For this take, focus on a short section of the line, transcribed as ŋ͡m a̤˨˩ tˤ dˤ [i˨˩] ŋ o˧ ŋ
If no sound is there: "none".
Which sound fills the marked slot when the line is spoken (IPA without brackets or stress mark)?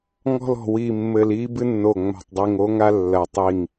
i˨˩